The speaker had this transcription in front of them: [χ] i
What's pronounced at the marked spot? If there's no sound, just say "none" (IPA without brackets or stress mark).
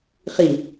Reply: χ